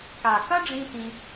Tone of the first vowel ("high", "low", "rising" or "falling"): low